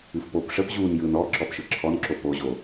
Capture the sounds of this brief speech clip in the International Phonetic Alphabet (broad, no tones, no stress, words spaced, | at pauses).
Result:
ɨfpop ʂəp ʑun jɯn ɔ ǁɔpʃɯǁʰɔnǁo poʑo